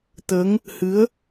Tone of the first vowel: rising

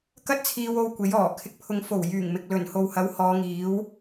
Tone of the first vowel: high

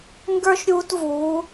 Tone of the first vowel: high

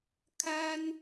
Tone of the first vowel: high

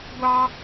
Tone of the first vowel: high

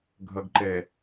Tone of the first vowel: low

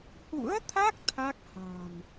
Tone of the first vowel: rising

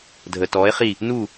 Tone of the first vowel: low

